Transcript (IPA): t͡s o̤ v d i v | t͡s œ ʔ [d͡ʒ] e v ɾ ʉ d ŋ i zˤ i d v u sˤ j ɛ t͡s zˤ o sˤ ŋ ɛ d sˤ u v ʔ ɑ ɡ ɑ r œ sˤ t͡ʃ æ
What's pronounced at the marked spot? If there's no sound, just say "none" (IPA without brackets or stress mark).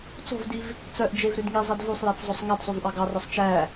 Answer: d͡ʒ